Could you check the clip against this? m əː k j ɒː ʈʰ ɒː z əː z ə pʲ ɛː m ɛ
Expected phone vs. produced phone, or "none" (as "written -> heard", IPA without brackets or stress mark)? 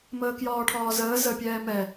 none